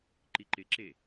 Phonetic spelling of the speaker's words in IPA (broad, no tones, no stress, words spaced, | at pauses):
ǃiǃɪǁe